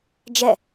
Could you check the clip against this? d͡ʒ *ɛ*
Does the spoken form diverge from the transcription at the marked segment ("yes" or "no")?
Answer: no